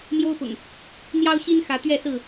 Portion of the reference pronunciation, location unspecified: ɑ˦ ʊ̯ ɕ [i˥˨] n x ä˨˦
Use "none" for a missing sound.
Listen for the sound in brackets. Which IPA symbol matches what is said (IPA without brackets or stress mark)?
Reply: i˦